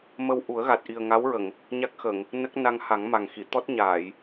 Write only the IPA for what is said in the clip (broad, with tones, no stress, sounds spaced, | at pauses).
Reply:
m ə˧ w ʔ u˨˩˦ ə̯ ɣ a˨˩ t̚ ʔ i˨˩ ə̯ ŋ a˧˥ w ɹ ə˨˩˨ ŋ | ɲ a˦˥ k̚ x ə˨˩˨ ŋ | n ə˦˥ k̚ n a˧ ŋ h a˨˩˦ ŋ m a˨˩ ŋ x i˨˩˨ t̪ ɔ˦˥ t̚ ɲ aː˨˩˨ j